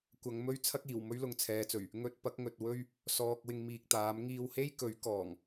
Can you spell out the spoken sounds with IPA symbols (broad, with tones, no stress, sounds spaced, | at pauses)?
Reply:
kʷ ɐ˨˧ ŋ m ɵ˥ ɥ t͡sʰ ɐ˥ k̚ iː˨˩ w m ɵ˥ ɥ l ʊ˧ ŋ t͡sʰ ɛː˨˧ t͡s ɵ˨˩ ɥ | ŋ ɵ˧ t̚ p ɐ˨˥ k̚ ŋ ɵ˨ t̚ w ɵ˥ ɥ | s ɔː˨ k̚ w ɪ˧ ŋ m iː˨ k̚ t̪ aː˨˥ m ŋ iː˧ w h e˥ j k ɵ˨˥ ɥ k ɔː˨˩ ŋ